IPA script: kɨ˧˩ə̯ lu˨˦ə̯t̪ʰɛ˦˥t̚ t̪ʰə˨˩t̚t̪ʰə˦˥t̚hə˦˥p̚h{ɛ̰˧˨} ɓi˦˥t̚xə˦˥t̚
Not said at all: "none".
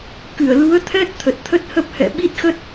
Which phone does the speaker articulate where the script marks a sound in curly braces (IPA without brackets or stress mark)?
ɛ̰˧˨